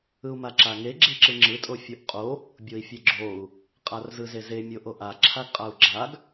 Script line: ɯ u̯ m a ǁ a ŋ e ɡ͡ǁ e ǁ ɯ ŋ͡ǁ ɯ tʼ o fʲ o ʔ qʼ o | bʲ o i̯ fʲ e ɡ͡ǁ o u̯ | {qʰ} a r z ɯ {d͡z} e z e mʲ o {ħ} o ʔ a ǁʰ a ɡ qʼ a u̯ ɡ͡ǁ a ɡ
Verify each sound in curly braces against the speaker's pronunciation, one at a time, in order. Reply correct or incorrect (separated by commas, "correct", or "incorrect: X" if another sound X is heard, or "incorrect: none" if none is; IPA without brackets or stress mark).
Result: incorrect: qʼ, incorrect: z, incorrect: ʔ